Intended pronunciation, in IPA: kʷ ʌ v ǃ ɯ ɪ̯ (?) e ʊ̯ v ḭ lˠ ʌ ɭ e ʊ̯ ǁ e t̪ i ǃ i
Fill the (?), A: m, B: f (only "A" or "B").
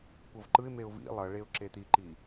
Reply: A